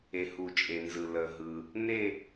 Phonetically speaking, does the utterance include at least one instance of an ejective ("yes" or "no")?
yes